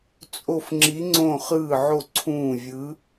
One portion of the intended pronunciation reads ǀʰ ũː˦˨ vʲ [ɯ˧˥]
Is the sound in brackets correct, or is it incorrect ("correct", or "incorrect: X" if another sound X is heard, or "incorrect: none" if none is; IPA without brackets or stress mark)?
correct